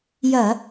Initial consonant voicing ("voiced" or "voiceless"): voiced